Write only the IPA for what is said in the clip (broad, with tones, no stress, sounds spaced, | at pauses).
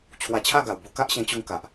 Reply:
t͡ɕʰ w a˧ t͡ɕʰ a˥˧ ɡ a˨˩ w b u˧ k a˦ ʔ ɕ ẽ˧ t͡ɕ u˧ ŋ k a˨ ʔ